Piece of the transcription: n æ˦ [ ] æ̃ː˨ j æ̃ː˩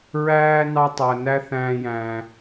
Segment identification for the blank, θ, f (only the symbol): θ